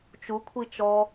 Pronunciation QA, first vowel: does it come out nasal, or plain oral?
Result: oral